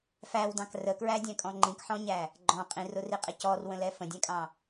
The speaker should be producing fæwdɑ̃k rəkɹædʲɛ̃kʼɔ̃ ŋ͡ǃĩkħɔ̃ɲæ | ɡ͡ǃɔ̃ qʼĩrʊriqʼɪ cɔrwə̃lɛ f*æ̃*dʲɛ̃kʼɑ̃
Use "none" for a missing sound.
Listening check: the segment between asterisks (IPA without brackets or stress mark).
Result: ə̃